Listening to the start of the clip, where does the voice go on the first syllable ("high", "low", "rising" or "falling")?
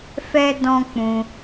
high